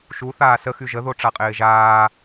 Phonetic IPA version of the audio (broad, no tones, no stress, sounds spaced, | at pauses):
ʃ u θ aː s ə x y ʒ ə ð o ʈ͡ʂ a qʼ ɪː ʒ aː